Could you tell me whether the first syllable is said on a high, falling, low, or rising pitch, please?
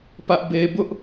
high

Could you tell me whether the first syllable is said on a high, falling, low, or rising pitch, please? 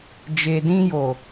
low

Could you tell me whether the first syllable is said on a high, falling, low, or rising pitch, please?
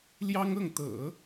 high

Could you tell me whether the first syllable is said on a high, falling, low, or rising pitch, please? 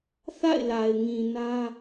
falling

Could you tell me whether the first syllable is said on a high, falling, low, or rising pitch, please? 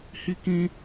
high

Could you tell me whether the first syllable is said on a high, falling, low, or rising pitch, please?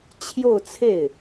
falling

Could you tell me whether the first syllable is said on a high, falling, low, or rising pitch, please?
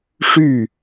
falling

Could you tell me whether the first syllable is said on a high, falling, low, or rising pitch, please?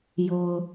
low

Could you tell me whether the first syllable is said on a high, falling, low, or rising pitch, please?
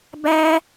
high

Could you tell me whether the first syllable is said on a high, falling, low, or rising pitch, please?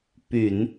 low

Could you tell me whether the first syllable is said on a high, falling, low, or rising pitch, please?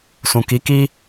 low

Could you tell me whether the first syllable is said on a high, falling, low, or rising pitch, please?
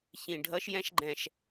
low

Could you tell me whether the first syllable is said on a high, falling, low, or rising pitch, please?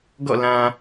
falling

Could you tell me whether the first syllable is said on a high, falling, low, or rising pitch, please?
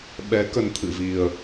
rising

